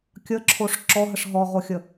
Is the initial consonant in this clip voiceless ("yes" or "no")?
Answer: yes